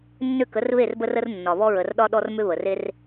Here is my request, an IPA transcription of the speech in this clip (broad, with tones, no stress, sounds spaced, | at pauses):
nː ʏ˥˨ k ə˨˦ r β e˥˨ r b ə˦ r ə˦ r nː ɒ˨ β ɔ˦ ɹ ə˨ r ɗ ɒ˦ ɗ ɔ˦ r m ʏ˦ β ə˨ r e˦ r